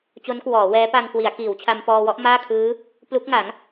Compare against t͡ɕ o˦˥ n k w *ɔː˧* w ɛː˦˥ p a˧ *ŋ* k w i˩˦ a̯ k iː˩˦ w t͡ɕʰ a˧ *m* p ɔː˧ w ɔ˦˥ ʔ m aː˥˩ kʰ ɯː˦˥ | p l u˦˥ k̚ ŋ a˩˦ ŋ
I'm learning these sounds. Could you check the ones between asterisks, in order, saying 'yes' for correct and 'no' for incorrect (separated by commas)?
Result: no, yes, yes